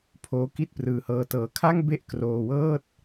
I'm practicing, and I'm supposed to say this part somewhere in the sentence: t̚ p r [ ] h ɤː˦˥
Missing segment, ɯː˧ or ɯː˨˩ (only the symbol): ɯː˧